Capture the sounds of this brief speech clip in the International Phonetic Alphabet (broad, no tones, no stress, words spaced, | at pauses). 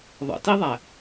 ðˤə̰tiðˤæ